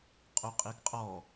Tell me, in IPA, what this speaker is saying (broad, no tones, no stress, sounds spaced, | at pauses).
qʼ u qʼ i ɡ qʼ ɔ